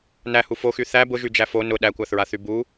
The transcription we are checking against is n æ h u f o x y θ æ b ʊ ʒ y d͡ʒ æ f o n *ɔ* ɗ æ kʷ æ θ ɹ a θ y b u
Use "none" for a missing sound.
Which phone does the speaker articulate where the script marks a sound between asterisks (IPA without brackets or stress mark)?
ʊ